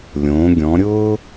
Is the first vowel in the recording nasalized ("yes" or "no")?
yes